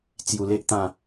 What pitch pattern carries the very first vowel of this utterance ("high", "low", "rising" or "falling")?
low